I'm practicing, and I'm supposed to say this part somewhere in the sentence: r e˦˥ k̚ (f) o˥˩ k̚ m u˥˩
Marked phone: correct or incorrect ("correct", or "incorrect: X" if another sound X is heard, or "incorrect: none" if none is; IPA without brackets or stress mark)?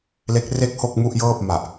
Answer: incorrect: h